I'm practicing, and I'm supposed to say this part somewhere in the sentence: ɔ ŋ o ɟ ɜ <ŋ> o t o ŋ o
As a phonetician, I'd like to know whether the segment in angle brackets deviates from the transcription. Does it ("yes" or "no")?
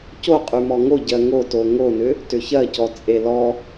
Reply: no